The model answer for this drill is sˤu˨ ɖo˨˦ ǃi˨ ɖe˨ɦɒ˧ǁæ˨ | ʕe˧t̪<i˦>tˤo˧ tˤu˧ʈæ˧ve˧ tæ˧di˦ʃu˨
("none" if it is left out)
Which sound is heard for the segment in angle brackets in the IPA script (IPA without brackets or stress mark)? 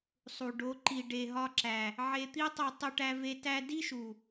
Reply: i˦